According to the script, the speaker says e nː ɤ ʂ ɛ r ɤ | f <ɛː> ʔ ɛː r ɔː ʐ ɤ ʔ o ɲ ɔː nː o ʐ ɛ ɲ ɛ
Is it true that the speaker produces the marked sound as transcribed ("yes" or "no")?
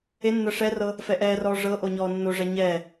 no